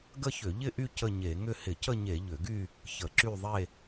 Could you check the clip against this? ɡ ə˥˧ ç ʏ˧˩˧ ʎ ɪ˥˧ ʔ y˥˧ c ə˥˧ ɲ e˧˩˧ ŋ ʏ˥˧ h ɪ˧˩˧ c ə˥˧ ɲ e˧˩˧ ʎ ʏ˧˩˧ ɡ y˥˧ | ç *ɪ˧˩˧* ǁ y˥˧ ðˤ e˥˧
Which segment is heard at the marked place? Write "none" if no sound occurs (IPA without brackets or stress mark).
ə˧˩˧